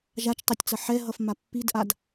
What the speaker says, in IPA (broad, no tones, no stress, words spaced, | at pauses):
ʒat͡ʃtˤetʲt͡sʌ ħɛɦʌfma pːidʔad